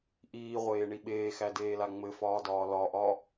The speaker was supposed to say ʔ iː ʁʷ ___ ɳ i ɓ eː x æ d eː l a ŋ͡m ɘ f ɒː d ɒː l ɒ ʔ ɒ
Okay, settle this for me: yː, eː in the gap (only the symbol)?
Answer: eː